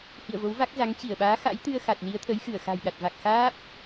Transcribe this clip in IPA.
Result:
h ḭ˧˨ ə̯ v o˨˦ w v a˦˥ k̚ z a˨˦ ŋ t͡ɕ i˧˩ ə̯ ɓ aː˨˦ x a̰˧˥ j t̪ ɨ˧ ə̯ x a˨˩ t̚ l i˨˦ ə̯ t̪ʰ ə˨˦ j x ɨ˧˩ ə̯ x a̤˨˩ j ɗ a˨˩ t̚ v a˨˩ k̚ x aː˦˥ p̚

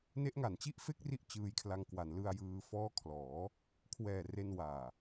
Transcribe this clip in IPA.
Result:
n e˦˥ ʔ ŋ a˨˩ n t͡ɕ i˥˩ ʔ f e˥˩ k̚ r i˦˥ ʔ t͡ɕ ɯː˧ j kʰ l a˧ ŋ k w a˩˦ n l ɯ˧ a̯ j ɯː˧ f ɔː˦˥ kʰ l ɔː˩˦ | kʰ w ɛː˨˩ r e˧ n w aː˨˩

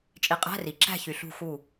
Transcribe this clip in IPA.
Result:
t͡ʃʼ i˩˥ qʼ æ̤˧˥˧ r i˩ ǁ æ̤˥˨ ç y˩ ɬ ṳ˧˩ x u˧˩

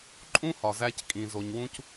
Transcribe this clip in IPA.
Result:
ǃʼ ũ˥ h ɒ˩ z æ˧ c kʼ ĩ˩ z o˩ ɲ w ũ˧ c

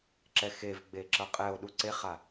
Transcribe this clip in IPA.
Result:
ǁ ɛ x e v ɡ͡b e ǁ ʌ qʼ ɛ o̯ ɗ u ǀ e χ a

